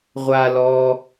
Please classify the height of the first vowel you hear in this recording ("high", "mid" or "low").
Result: low